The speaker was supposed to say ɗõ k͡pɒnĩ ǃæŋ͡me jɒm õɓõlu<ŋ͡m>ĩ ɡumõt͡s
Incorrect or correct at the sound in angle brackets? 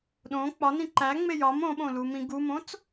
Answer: incorrect: m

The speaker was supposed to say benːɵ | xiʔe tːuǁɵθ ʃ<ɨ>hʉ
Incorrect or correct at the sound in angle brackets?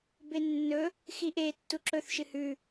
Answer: correct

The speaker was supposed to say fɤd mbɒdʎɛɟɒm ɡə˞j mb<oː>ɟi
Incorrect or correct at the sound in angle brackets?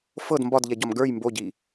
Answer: incorrect: o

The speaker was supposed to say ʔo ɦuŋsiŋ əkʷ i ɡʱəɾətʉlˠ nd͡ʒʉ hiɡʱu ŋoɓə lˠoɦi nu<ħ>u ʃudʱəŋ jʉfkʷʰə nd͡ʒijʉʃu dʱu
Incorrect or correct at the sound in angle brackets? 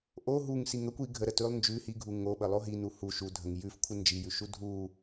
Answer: incorrect: h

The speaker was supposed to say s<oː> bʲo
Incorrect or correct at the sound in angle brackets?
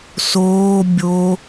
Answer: correct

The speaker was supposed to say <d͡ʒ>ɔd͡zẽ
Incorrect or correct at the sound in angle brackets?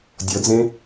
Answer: incorrect: dʲ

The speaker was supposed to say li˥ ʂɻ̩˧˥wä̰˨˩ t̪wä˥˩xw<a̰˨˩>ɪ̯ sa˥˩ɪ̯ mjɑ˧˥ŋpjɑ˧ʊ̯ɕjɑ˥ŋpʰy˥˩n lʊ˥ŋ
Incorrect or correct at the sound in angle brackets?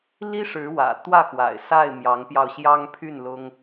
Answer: correct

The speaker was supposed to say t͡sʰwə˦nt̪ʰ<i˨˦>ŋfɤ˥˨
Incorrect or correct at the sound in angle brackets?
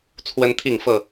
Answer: incorrect: i˥˨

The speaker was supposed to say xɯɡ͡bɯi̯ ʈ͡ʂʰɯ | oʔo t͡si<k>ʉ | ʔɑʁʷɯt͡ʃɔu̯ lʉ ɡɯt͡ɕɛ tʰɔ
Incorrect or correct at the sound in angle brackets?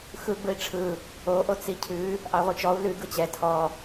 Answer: incorrect: cʰ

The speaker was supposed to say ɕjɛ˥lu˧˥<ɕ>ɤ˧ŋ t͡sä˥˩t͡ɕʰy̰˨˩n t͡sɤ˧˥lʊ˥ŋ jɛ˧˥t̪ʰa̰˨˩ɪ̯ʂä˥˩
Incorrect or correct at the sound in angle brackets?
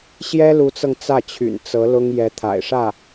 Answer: incorrect: t͡s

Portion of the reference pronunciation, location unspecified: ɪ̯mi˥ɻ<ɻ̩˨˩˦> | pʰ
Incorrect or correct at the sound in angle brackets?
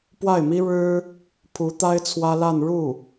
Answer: incorrect: ɻ̩˥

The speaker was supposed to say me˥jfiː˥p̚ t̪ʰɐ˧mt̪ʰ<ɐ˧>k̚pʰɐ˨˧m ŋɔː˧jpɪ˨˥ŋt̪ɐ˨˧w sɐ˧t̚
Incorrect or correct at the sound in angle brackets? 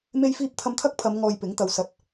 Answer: incorrect: ɐ˥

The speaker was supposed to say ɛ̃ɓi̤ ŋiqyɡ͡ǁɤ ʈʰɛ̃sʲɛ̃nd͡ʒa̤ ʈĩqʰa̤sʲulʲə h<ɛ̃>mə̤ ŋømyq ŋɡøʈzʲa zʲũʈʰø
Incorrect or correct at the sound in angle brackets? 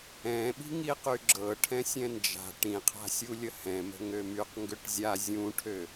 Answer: correct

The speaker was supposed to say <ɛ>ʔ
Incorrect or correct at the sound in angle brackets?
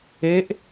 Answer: incorrect: e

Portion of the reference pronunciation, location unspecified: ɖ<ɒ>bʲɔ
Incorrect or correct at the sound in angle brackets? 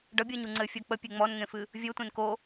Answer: incorrect: ʌ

